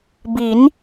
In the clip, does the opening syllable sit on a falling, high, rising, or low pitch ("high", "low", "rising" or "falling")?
rising